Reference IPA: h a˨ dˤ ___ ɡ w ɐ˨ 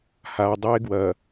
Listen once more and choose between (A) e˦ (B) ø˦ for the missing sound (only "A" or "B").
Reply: A